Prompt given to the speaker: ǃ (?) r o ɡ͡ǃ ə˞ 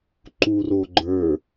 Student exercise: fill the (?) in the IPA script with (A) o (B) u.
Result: B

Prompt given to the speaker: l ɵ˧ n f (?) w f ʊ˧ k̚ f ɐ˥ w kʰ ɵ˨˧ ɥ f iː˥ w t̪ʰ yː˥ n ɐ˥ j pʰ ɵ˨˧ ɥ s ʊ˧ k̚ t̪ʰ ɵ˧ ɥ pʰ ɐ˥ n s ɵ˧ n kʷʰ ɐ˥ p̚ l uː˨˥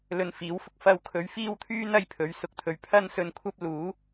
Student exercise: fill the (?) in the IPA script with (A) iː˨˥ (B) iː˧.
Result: A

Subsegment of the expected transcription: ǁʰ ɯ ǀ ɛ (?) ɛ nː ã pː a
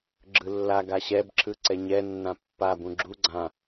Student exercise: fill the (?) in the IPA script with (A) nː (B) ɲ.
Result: B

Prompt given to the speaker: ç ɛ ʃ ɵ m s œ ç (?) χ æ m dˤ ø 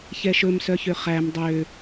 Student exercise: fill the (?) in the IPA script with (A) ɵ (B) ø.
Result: B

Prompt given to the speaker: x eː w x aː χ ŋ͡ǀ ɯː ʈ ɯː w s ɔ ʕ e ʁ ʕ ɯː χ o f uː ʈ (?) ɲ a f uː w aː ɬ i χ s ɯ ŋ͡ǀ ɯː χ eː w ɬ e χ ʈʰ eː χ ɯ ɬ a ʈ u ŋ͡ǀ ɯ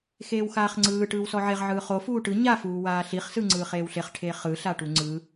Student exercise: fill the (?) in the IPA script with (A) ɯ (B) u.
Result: A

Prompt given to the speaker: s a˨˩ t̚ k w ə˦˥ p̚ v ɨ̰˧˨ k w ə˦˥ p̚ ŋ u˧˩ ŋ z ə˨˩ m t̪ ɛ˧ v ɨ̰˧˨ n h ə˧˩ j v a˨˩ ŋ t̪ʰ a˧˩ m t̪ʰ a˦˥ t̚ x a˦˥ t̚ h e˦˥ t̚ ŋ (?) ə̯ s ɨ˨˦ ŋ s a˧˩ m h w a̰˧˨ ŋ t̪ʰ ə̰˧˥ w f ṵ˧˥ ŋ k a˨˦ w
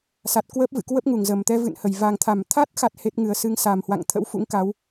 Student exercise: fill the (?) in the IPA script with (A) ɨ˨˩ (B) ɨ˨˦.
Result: A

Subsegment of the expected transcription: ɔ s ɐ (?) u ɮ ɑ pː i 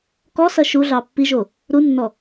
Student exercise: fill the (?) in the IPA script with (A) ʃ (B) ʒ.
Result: A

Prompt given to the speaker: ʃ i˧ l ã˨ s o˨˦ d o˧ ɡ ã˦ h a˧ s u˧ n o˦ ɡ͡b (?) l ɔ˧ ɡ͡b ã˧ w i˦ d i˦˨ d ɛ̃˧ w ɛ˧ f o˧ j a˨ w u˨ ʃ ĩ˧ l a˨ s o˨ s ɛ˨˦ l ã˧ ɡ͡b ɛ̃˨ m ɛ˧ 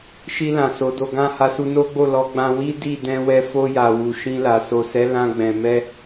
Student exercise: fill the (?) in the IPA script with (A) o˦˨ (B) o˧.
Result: A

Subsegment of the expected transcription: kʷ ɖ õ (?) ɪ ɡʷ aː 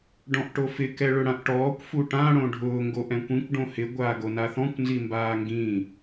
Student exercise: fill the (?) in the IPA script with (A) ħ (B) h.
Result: B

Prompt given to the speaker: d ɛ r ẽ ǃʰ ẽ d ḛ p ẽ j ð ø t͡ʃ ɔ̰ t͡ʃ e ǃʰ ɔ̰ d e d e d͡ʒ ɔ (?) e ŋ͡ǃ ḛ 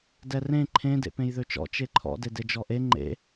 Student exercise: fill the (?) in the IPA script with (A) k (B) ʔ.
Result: B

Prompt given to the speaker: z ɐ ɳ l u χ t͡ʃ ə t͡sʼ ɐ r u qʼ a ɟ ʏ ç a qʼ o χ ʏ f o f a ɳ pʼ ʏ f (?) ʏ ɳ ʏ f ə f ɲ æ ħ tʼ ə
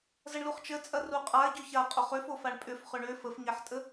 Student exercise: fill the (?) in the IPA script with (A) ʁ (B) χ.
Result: B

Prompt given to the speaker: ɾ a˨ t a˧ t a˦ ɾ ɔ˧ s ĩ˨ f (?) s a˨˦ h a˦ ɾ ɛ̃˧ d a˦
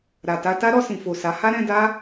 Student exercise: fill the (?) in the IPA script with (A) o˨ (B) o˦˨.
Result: A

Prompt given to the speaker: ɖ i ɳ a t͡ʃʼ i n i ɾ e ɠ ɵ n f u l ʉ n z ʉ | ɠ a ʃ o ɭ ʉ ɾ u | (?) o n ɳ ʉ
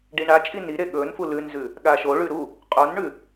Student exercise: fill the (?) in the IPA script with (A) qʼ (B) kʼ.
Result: A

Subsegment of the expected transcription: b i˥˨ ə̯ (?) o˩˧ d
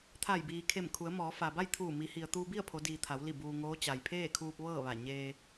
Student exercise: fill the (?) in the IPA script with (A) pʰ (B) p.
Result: A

